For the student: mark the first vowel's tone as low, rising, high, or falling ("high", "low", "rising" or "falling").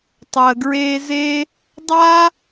low